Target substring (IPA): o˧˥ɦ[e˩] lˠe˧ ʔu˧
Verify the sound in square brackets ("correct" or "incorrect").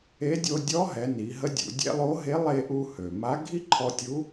incorrect